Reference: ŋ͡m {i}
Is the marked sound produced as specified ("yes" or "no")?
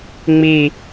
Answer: yes